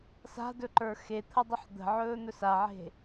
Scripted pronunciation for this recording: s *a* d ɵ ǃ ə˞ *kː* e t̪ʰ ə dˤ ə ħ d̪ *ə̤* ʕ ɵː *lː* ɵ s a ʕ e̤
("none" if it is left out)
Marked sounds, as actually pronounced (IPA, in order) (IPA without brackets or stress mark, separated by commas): a̤, x, ə̤, n̪